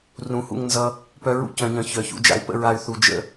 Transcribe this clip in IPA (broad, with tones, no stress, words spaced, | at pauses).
rũ˨˦hṵ˧ŋnzʌ˧ | pœ˦ɹṵ˦ cœ̃˧ɲœ̃˧ çœ˨çṵ˧ d͡ʒa̰˧y̯pə̰˧ɹa˨y̯ θu˨d͡ʒə̰˧